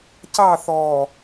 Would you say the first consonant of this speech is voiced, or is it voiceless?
voiceless